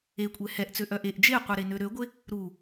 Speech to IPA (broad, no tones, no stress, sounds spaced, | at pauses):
e kʷʼ ɛ h ɛ ʔ t͡s ø ʔ œ ʔ e ʔ d͡ʒ e qʷ ɛ ɾ e n ø ɾ ø ɡʷ e | ɾ u